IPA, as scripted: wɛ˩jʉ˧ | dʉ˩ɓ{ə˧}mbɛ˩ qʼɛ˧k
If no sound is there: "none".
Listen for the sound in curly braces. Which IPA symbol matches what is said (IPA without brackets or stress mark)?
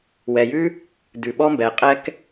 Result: ɔ˧